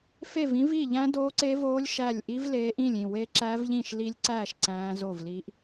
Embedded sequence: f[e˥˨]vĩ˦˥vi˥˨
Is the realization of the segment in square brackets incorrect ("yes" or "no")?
no